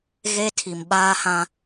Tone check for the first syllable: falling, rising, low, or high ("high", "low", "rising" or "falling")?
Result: high